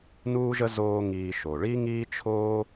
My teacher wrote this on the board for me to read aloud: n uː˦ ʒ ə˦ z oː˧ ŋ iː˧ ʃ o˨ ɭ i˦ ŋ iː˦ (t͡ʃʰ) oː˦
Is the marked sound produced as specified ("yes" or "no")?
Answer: yes